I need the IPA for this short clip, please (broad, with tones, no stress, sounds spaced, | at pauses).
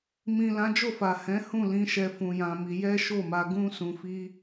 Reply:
m ĩ˨ l ã˨˦ d͡ʒ o˦˨ f a˨ h ɛ̃˨˦ h ũ˦˨ l ĩ˧ ʃ ɛ˧ f ũ˧ j ã˧ m i˧ j ɛ˦ ʃ o˦˨ m a˧ ɡ ũ˦ s ũ˧ f i˦